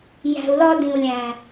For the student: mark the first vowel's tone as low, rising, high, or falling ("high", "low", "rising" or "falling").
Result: low